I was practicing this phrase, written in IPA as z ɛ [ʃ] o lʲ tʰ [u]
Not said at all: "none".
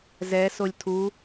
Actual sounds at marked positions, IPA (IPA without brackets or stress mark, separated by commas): s, u